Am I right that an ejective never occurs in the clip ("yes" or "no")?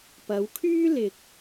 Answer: yes